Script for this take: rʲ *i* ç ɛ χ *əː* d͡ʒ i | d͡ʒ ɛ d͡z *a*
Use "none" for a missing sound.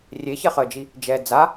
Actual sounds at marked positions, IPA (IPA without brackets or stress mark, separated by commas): e, əː, a